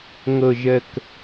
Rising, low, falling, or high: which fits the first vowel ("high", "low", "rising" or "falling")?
low